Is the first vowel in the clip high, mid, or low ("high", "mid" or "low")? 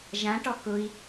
low